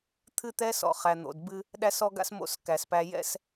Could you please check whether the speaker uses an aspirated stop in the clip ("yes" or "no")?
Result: yes